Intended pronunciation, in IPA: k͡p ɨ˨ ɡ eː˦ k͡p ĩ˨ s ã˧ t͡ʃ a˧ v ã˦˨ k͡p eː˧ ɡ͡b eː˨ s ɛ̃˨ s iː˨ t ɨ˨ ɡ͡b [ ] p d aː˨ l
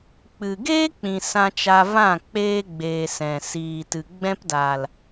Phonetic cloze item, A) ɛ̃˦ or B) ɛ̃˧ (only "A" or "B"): B